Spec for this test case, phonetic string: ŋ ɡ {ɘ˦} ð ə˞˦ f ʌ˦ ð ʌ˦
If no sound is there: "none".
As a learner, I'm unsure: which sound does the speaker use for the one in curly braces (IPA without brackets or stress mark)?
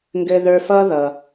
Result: ɘ˦